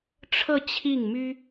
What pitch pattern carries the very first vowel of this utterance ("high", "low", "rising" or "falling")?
falling